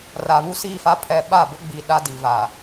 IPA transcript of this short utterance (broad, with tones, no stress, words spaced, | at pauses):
ra˨βu˦siː˦˨fa˦ pʰɛ˦ ɓa˦˨bʊ˦ɡ͡bi˨ ɗa˦di˨va˨